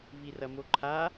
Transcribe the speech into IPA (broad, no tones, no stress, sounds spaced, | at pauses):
v i r ɐ m o ǃʰ a